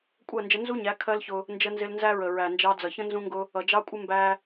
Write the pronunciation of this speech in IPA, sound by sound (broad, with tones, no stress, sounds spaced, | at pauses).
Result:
kʷʼ ɜ˦˨ n d͡ʒ ə˧ n z u˦ ɲ æ˨˦ kʰ ɜ˦ l ç ʊ˧ | n d͡ʒ ə˧ n z ɪ˧ l n z æ˦ ɹ ə˨ ɹ æ˨ n d͡ʒ ɑ˧ d͡z ʌ˨ ç ə̃˦ n z ũ˧ ŋ ɡ ʊ˧ | ʌ˨ d͡ʒ ɑ˦ kʷʼ ɪ˦ m b æ˦